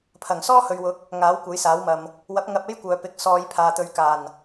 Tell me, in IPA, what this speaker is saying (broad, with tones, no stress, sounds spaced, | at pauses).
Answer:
pʰ ɐ˨˩ ŋ s ɔː˥ h ɵ˨ ɥ w ʊ˨˥ k̚ | ŋ aː˨˥ w kʷ ɐ˨˥ j s aː˨˥ w m ɐ˨ m | w ɐ˨˥ p̚ ŋ ɐ˧ p̚ e˥ j kʷ œː˨ p ɪ˨˥ k̚ s ɔː˨˧ j pʰ aː˨ t̪ ɵ˨˧ ɥ k aː˨˩ n